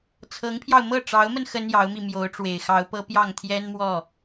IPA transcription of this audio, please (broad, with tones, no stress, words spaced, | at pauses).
t͡sʰɤ˧˥ŋpʰjɑ˧ʊ̯mɤ˥˩ ʈ͡ʂɑ˧˥ʊ̯mə˧n xə˥njɑ˧˥ʊ̯mi˧ mjo˧˥ʊ̯ʈ͡ʂwe˨˩ɪ̯xɑ˧˥ʊ̯pɤ˥ pjɑ˥˩ŋt̪ʰjɛ˥nmwɔ˥˩